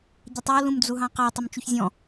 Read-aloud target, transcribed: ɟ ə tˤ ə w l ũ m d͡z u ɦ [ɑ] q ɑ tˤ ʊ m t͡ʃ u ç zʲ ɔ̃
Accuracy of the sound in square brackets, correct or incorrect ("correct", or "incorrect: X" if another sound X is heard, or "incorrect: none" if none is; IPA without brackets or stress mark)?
incorrect: ɑ̃